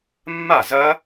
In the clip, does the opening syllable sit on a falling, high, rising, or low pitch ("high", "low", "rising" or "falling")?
falling